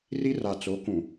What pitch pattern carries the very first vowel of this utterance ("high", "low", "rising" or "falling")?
high